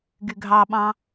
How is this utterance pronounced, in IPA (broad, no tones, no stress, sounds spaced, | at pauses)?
ɡ y ɡʱ ɑ ɓ ɑ̃